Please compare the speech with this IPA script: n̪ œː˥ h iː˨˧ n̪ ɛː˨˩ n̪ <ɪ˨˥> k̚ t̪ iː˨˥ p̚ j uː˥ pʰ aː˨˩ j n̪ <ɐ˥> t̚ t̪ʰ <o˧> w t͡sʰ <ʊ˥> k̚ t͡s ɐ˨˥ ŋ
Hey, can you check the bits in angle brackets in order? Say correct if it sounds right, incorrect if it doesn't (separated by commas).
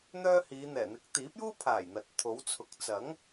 correct, incorrect, incorrect, incorrect